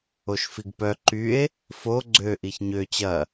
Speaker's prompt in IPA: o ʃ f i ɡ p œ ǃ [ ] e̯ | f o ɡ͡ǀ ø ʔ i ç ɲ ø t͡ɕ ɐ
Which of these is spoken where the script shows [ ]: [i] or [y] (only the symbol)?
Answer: y